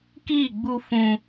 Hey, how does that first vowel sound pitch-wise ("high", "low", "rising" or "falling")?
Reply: falling